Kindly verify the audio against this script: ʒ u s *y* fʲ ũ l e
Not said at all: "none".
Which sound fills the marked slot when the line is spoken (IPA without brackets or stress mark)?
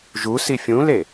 i